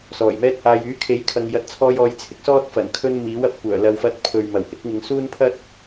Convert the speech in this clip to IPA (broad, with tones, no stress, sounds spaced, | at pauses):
s ɔː˨˩ j m ɛː˥ t̚ h aː˧ j yː˨˥ kʰ e˨˥ j kʰ ɐ˨ ŋ j ɐ˨ t̚ t͡sʰ ɔː˧ j ɔː˧ j t͡sʰ ɪ˥ k̚ s ɔː˥ t̚ f ɐ˨˩ n kʰ ɵ˧ n m iː˨˥ w ɐ˥ p̚ kʷ œː˨˩ l ɐ˨ w f ɐ˨˥ t̚ pʰ ɵ˨ ɥ m ɐ˨˩ w h ɪ˨˥ k̚ ŋ ɪ˨˧ ŋ s uː˥ n pʰ ɐ˥ t̚